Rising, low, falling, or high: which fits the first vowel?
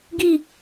low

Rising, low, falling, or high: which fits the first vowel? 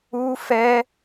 high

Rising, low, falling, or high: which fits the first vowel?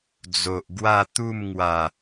low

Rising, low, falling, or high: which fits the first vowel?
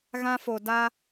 high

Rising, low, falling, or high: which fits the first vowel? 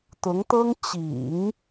rising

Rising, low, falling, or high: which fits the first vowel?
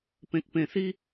low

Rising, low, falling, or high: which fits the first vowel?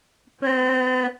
low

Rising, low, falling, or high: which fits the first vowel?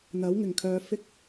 rising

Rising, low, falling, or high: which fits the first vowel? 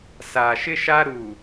low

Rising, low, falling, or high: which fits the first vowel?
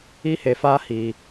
high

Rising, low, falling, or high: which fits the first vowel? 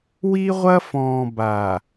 high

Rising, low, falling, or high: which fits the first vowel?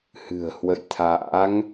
low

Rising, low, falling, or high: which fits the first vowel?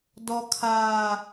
high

